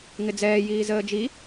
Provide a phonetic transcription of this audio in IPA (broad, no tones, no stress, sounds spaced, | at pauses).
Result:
ŋ ɪ d͡z ɛː j iː z əː d͡ʒ i